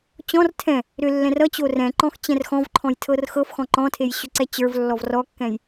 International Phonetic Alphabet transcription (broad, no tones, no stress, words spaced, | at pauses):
t͡ɕɔ̃r tʰɛ̃ | ɾʏlːɛ̃r ʌt͡ɕo rɛ̃ ǃɔ̃xt͡ɕɛ̃rxɔ̃vǃʰɔ̃j tʰɤrxɤfxɔ̃ ǃɔ̃tʰej ɕʏǀɛt͡ɕə˞vlːɔv rɔkːɛ̃j